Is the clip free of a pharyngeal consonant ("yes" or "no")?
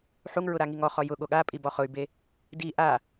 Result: no